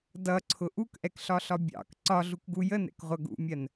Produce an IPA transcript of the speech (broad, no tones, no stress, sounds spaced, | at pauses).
d ʌ ǀʰ ʊ ʔ u k ʔ ɛ k ɬ ɒ ɬ ɒ bʲ ɑ̰ k ǀ ɒ ɮ u k ɡ u j ə n ɛ̰ k ʁʷ ʌ ɡ ṵ mʲ ɜ n